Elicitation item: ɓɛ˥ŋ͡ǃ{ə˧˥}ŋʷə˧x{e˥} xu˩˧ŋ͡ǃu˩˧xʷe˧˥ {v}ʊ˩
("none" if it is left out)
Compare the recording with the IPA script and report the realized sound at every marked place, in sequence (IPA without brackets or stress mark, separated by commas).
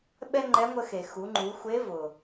ɛ˧˥, e˩, v